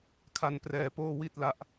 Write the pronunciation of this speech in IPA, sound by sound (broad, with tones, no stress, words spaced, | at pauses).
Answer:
kʰa˧nprɛː˧poː˥˩ wi˥˩t̚la˦˥ʔ